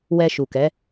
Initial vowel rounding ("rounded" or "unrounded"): unrounded